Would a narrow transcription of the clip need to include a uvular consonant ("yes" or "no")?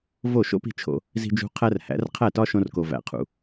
yes